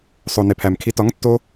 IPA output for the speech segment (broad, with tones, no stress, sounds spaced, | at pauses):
sˤ o˨ n e˨ pʰ æ˨ m kʰ i˧ t ɒ˨˦ ŋ tː o˧